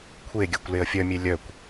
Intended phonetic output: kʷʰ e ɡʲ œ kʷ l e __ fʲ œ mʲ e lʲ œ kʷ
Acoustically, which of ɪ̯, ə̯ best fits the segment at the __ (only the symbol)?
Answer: ə̯